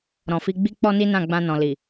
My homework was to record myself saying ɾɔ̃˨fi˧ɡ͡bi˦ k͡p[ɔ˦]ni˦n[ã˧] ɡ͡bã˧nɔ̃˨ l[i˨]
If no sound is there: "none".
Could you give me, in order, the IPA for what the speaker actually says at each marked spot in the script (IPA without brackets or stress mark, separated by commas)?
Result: ɔ˦, ã˦˨, i˨